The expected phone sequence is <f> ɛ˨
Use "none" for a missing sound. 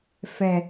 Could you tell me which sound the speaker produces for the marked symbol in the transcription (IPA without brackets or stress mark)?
f